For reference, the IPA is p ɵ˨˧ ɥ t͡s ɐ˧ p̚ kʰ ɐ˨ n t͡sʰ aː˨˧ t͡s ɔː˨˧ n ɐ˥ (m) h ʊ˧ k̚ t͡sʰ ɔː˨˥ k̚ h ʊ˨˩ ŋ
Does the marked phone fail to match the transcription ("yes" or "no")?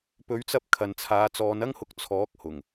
yes